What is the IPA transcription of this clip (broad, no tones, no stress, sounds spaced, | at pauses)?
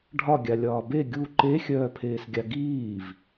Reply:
ɖʱ ɒ ɡʲ a lʲ ɒː b e ɡʲ u ǃ e xʲ œː pʰ eː s ɡʲ a ɡ iː v